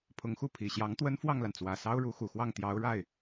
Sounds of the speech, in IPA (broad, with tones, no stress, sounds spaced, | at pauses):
pʰ ʊ˧˥ ŋ x u˥˩ pʰ i˨˩ ɕ j ɑ˧˥ ŋ t̪ w ə˥ n f w ɑ˥˩ ŋ l a˩ n t͡s w ä˨˩ s ɑ˥ ʊ̯ ɻ u˧˥ x u˨˩ x w ɑ˥˩ ŋ t̪ j ɑ˧˥ ʊ̯ ɻ a˥˩ ɪ̯